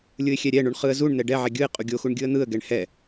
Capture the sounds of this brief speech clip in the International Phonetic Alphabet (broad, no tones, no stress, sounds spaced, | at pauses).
lʲ ɯ ɪ̯ xʲ ɛ ɾʲ ɛ ɳ u ɳ χ ɯ ə̯ z u ɳ n̪ ɛ ɖ ɛ ʕ ɛ ɡʲ ɯ ɪ̯ qʼ u ɡʲ o x u ɳ ɡʲ ɯ ə̯ n̪ ɯ ə̯ ɡ ɛ ɳ h ɛ